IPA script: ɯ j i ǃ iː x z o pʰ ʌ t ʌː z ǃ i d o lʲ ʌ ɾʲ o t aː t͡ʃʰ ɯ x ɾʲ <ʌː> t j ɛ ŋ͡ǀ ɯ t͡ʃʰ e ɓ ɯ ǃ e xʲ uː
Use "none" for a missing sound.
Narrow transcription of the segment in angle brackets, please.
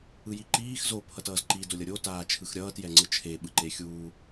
ʌː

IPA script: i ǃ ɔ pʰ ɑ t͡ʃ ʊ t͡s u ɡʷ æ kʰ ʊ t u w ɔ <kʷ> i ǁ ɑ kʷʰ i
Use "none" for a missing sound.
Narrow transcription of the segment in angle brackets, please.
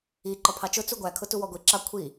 ɡʷ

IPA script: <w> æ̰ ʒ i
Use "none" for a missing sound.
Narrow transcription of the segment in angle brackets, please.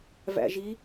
v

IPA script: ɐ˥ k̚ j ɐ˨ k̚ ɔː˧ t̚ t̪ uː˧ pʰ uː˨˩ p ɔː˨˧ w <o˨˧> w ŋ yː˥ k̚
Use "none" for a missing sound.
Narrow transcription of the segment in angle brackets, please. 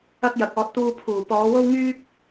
o˥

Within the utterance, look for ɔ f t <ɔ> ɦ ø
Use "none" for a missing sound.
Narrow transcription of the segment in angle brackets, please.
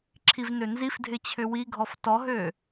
ɔ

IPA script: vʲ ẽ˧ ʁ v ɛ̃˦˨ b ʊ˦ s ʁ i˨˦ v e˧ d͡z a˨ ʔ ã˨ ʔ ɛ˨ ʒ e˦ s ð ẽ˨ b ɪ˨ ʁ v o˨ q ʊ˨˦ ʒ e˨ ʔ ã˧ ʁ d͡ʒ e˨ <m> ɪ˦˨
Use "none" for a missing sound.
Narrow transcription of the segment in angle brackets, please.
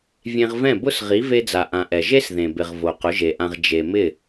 m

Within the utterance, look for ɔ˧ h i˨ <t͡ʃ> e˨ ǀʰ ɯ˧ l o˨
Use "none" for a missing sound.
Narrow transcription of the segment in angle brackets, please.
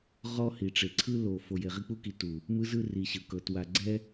ʈ͡ʂ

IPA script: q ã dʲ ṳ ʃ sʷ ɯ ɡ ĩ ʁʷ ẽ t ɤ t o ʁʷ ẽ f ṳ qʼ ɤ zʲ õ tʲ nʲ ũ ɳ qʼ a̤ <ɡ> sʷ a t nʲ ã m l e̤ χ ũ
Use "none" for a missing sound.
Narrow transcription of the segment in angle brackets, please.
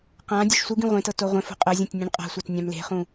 none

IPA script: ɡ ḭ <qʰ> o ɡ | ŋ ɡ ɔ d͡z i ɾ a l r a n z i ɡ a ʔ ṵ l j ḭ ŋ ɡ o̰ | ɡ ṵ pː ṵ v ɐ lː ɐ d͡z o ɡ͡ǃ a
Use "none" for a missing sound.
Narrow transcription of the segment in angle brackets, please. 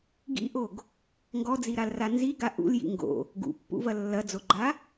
ʔ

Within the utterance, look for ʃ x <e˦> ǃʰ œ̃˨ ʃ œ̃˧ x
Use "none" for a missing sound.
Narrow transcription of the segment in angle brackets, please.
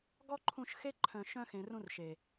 e˦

